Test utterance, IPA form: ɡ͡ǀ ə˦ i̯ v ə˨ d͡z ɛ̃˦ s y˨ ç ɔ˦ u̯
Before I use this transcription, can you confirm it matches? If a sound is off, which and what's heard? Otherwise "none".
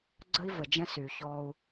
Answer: d͡z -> d͡ʒ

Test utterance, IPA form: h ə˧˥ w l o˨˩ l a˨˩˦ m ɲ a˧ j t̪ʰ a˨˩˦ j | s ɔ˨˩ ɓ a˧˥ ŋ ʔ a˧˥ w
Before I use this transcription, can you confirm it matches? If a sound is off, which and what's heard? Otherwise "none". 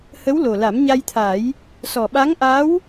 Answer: none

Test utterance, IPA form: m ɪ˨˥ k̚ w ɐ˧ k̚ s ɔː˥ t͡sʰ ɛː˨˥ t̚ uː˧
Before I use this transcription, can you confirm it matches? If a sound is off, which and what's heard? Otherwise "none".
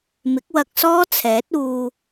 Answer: none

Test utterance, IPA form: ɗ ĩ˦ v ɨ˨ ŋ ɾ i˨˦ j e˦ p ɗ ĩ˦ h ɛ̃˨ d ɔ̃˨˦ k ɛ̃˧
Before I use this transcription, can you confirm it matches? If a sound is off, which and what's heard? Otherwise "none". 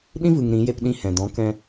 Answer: i˨˦ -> ĩ˨˦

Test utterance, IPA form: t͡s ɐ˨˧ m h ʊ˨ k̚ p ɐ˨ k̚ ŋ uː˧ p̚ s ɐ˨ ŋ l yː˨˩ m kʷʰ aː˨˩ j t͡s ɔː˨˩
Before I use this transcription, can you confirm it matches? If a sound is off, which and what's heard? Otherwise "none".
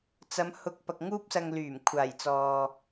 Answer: ɔː˨˩ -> ɔː˨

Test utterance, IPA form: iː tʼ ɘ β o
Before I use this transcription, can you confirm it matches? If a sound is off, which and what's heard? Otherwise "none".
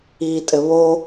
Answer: none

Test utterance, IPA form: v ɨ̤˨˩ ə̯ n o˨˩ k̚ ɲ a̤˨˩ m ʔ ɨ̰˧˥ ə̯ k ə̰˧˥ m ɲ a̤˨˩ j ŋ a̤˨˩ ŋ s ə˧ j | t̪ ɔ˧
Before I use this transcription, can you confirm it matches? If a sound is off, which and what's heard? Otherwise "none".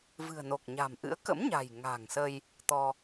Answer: none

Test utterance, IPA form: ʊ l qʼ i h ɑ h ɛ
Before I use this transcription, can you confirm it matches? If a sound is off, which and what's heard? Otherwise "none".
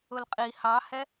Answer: none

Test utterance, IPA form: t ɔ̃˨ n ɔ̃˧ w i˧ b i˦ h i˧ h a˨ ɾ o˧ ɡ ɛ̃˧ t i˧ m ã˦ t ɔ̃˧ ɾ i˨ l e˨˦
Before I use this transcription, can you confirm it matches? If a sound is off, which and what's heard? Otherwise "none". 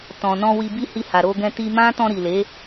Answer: none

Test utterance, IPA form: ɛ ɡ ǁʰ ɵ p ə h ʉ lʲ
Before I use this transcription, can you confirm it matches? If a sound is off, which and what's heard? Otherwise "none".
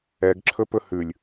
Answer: ə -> ɵ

